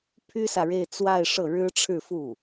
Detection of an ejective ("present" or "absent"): absent